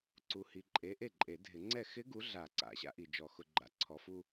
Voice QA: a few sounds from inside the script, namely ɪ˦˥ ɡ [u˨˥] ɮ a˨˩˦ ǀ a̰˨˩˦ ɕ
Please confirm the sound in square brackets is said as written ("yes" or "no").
yes